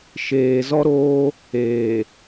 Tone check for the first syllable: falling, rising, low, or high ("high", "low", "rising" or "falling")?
low